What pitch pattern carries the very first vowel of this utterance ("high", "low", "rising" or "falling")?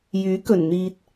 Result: rising